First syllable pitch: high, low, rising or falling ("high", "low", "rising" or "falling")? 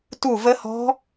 falling